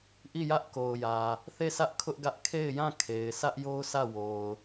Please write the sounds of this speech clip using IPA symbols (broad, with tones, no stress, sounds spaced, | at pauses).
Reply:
ʔ i˦˨ j ä˦ ʔ k o˨ ʊ̯ j ä˨ | θ e˦˨ sʰ ä˦ ʔ kʰ ʊ˦ ʔ ɡ ä˦ ʔ kʰ e˦˨ ɪ̯ j ã˦˨ kʰ e˨ ɪ̯ sʰ ä˦ ʔ j o˦ ʊ̯ sʰ ä˦˨ w o˨ ʊ̯